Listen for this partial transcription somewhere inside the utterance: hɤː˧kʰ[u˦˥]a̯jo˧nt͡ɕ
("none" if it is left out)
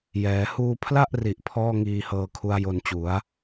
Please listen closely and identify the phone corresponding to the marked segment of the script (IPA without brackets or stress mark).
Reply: u˦˥